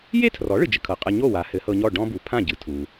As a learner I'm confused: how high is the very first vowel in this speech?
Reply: mid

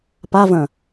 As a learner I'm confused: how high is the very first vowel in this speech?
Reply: low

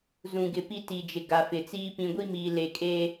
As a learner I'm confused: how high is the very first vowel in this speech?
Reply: high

